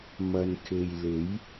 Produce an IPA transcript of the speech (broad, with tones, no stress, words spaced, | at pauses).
mɐ˨nkʰe˨jle˨˥j